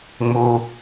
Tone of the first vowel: low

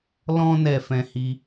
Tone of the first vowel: high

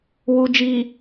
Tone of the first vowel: low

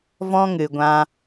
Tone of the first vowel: high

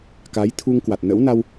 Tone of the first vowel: rising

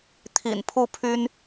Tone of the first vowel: low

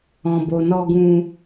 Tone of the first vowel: low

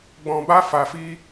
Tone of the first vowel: low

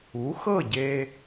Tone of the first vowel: rising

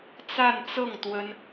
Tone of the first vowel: falling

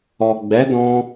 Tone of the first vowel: low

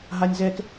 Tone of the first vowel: high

